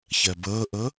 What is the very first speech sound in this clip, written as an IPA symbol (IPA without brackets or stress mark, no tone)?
ç